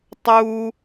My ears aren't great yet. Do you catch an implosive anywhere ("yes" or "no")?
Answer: no